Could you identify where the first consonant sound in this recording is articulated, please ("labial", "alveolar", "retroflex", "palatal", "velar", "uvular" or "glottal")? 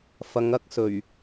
labial